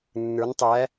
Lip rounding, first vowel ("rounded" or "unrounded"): unrounded